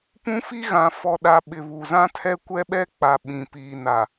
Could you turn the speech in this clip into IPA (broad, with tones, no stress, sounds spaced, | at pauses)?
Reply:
p ũ˦ f i˦ ɣ ã˨ f ɔ˨ ɗ a˨ ɓ ɪ˨ β u˨ z ã˦ tʰ ɛ˦ kʷ ɛ˦ ɓ ɛ˦ k͡p a˨ ɓ ĩ˨ p iː˨ n a˨